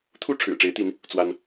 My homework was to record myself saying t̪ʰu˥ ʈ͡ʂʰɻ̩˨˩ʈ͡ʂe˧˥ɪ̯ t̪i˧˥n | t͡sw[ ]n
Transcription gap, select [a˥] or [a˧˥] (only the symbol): a˥